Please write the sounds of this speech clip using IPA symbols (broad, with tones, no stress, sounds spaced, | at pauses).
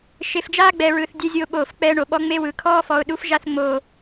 ʃ e˨ f d͡ʒ aː˦ ɡ͡b ɛ˨ ɹ ɯ˨ θ dʲ ɛ˦ zʲ oː˦ ɓ oː˦˨ f k͡p ɛː˦ ɳ o˨ ɓ ɔ˦ ŋ͡m e˦ w ɯ˨ kʰ ɔː˦ f ɔ˨ ʊ̯ ɗ u˦ f ʒ a˦ θ ŋ͡m oː˦